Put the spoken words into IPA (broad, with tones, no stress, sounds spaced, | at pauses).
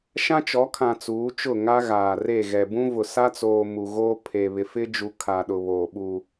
ʃ ã˦ t͡ʃ ɔ˨˦ kʰ ã˨ t͡s uː˨˦ t͡ʃ ʊ˦˨ ŋ a˦ ɣ aː˨ r e˦˨ ɣ ɛ˨ b ũ˦ v ʊ˨ s a˦ t͡s oː˨ m u˨ ɣ o˦ pʰ e˨ β ɪ˨ f ɪ˦ d͡ʒ u˨ kʰ a˨ ɗ ʊ˨ β oː˨ ɓ u˨